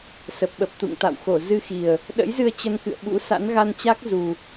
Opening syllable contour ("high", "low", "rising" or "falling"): low